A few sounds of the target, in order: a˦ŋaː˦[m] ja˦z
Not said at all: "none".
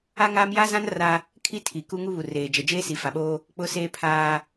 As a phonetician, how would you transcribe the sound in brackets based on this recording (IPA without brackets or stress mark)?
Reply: m